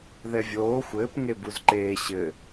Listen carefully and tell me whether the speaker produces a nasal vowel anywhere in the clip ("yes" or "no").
no